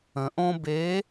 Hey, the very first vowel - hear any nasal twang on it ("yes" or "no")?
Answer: yes